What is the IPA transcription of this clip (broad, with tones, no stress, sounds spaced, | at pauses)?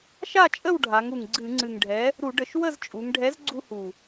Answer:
ʃ a˥˨ t͡ʃʼ ə˥˨ w ɖʱ a˩˧ ŋ u˨˩ ŋ ɡ͡ǀ ɨ˧˩˧ ŋ͡ǀ ɨ˨˩ ŋ ɖʱ ɛ˨˥ | ɾ u˧˩˧ ɖ ə˧˩˧ ʃ w ə˥˨ z t͡ʃʼ u˩˧ ŋ ɖʱ ɛ˨˥ z ɡ͡ǀ u˦ h u˨˩